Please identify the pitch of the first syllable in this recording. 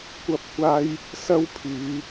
high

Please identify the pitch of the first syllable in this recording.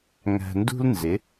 low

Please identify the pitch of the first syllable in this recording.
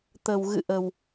low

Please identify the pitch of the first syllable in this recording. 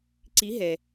rising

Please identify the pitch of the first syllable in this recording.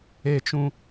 high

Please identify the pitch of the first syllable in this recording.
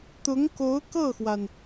rising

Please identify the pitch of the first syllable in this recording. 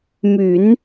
low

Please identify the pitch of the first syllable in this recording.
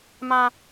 low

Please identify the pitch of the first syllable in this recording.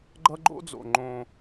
high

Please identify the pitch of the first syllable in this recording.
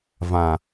low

